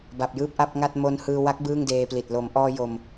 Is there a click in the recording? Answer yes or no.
no